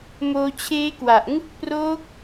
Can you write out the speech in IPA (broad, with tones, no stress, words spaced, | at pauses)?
moː˧t͡ɕʰeː˦˥kwa˨˩ʔ ŋɯ˦˥k̚proː˦˥k̚